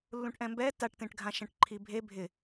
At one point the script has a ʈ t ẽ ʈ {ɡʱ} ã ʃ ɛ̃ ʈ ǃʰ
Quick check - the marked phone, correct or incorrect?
correct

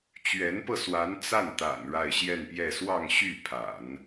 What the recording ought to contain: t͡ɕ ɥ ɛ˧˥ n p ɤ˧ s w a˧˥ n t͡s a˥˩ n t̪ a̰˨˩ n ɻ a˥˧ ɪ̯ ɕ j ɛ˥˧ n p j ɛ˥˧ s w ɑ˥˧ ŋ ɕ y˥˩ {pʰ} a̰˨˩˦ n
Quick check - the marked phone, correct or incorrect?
correct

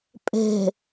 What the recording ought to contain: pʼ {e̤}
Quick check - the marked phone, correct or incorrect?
correct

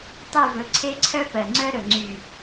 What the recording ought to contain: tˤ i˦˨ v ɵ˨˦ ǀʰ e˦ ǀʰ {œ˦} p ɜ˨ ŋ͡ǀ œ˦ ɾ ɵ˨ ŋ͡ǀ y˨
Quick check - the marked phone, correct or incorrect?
correct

